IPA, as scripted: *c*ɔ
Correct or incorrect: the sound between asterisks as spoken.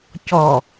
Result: correct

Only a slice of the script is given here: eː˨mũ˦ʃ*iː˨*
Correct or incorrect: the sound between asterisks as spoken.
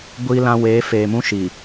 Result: correct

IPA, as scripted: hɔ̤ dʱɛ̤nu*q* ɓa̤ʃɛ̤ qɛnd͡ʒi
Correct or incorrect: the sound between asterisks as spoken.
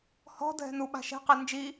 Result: incorrect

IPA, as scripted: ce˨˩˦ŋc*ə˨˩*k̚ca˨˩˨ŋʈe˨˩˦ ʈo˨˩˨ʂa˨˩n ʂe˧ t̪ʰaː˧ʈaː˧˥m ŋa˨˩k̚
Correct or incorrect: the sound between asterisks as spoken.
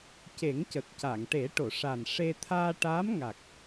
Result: correct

